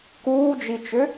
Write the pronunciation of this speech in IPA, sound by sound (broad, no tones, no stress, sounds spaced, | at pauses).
k uː d͡ʒ i t͡ʃ ʏ